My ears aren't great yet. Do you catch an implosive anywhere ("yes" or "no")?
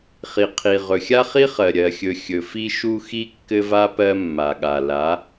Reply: yes